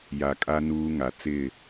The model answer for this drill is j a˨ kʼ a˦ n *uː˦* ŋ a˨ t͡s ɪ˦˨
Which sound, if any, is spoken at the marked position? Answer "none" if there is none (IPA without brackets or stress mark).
uː˦